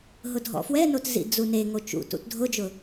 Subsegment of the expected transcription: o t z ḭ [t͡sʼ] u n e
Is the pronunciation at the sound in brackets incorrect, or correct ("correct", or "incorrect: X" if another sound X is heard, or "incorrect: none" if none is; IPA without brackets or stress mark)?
incorrect: d͡z